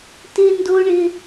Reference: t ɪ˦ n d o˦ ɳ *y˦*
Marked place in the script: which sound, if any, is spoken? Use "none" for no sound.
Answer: ɪ˦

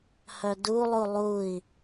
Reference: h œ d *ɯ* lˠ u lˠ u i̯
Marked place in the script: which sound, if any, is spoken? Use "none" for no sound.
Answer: u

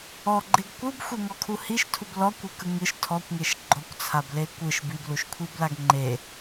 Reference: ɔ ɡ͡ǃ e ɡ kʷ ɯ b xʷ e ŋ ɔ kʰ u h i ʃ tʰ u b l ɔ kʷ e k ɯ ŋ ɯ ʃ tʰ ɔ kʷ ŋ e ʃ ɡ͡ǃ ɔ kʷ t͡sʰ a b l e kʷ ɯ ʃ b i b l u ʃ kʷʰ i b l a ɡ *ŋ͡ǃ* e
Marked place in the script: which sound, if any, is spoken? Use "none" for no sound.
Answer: ŋ͡ǃ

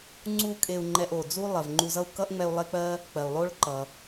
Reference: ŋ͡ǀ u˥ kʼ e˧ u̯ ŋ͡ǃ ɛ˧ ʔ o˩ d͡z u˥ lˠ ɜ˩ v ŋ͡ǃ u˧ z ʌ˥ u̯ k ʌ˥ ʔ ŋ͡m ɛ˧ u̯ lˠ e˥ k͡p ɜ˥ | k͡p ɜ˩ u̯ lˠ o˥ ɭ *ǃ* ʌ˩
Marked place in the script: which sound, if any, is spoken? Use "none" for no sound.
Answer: ǃ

